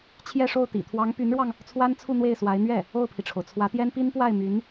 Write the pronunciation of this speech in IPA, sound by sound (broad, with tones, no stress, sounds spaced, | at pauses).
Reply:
t͡ɕʰ j ɛ˥˧ ʂ o˥˩ ʊ̯ t̪ ḭ˨˩ t̪ʰ w ɑ˧˥ ŋ p y˧˥ n ɻ w ɑ˧ ŋ | t͡sʰ w a˥ n t͡sʰ u˥˧ n̪ w e˥˩ ɪ̯ s w a˧˥ ɪ̯ n̪ ɥ ɛ˥˩ | o˥˩ ʊ̯ pʰ i˩ ʈ͡ʂʰ o˩ ʊ̯ t͡sʰ w ä˧˥ t̪ j ɛ˥ n p i˥ n p w a˥˩ ɪ̯ m y˧˥ n